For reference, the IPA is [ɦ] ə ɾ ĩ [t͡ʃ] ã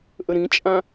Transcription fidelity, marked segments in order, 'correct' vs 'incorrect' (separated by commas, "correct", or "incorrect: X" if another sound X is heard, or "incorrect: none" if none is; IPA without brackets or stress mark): incorrect: ʔ, incorrect: t͡ʃʼ